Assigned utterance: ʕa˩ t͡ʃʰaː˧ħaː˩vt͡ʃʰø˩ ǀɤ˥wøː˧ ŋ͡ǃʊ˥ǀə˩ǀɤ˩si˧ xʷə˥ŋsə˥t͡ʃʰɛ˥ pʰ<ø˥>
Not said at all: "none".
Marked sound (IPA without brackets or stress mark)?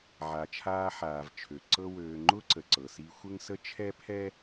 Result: ɛ˥